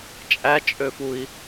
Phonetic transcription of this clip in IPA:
t͡ʃʼ æ t͡ʃʼ ø f u i̯

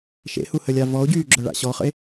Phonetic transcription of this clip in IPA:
ʃ ḛ h u h ə lʲ a v ɔ o̯ ɟ yː ɡ͡ǁ œ ɭ a̰ ɕ ɔ χ ə̰ e̯

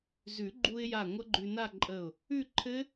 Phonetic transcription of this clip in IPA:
z ʉ˨˩˦ ɡ͡ǃ u˧ ɪ̯ j a˧˩ ŋʷ ʌ˦˥ ɡ͡ǃ ʉ˧ n a˥˧ ǃʼ ə˧˩ ʊ̯ | ʉ˥˧ ǃʰ ɘ˦˥

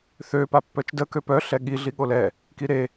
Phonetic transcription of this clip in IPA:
θ ø p a pː œ t͡ʃ d ə k ø p œ ɬ ɛ ɠ i ɮ i ɠ o l ɛ | k i ɾ e

